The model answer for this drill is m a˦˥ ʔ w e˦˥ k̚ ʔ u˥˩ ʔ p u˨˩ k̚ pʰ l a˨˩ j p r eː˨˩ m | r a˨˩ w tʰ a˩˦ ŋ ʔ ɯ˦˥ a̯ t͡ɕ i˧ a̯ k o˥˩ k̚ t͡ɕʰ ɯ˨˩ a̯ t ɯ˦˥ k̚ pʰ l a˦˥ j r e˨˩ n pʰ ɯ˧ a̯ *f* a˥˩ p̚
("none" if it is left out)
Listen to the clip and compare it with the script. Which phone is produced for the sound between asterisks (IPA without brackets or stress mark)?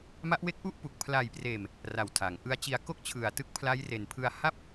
h